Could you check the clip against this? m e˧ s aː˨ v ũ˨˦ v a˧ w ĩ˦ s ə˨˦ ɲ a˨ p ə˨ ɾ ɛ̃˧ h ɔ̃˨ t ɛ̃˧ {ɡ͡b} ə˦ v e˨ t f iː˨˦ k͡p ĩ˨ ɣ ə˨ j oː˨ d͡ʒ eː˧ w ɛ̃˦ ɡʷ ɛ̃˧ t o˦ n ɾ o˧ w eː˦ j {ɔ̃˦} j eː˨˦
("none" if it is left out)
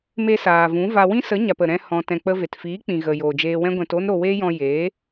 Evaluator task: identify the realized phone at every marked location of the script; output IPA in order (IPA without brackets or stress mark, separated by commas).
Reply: k͡p, ɔ̃˧